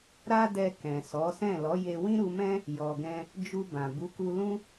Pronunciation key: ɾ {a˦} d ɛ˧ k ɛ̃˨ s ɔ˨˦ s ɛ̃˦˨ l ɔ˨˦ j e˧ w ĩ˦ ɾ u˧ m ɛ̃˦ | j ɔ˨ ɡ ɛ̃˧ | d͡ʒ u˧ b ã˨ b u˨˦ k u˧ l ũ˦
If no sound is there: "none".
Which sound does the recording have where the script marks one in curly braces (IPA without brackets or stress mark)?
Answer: a˦